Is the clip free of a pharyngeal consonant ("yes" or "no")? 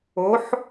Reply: no